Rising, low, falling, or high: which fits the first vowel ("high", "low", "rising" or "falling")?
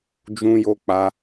high